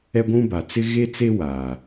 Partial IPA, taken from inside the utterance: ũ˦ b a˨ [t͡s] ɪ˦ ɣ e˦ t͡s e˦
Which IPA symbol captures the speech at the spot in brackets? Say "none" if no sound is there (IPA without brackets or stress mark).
t͡s